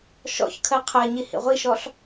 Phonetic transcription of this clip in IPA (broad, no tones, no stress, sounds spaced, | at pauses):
ʃ ɔ̰ ç kʰ ɜ qʰ ɜ ɲ i h ḭ ʁʷ i ʃ ɔ ɬ